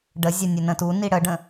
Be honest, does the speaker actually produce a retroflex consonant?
yes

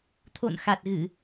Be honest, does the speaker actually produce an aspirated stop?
yes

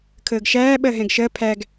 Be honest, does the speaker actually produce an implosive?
yes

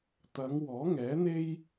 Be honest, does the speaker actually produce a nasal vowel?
no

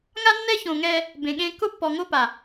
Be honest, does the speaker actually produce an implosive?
yes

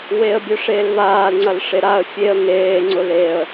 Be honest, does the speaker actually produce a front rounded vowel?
yes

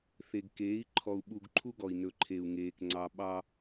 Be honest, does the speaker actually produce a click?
yes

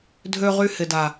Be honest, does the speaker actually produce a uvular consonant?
yes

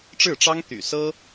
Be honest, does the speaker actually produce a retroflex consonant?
yes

